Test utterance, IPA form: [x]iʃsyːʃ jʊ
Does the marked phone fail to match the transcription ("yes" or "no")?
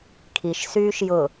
yes